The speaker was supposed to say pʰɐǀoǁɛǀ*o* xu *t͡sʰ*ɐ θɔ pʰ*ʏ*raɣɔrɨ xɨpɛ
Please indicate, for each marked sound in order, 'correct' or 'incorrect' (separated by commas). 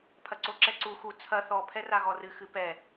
incorrect, correct, incorrect